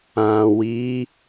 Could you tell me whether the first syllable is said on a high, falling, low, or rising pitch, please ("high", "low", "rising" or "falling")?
low